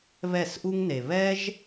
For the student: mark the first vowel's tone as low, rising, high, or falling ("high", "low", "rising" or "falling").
falling